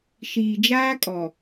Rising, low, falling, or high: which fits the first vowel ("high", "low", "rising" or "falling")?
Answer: low